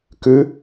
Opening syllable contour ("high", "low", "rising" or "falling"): rising